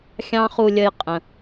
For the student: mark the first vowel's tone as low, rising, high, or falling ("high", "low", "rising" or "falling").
high